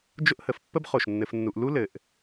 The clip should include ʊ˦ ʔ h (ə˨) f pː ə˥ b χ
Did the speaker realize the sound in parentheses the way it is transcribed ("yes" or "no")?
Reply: yes